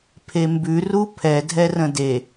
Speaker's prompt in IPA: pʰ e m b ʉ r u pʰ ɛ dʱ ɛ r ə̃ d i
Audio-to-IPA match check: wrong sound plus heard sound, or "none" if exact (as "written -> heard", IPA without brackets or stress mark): i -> e